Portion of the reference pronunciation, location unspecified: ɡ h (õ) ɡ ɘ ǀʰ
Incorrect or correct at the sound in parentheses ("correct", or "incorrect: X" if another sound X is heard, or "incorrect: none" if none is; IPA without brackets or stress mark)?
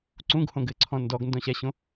correct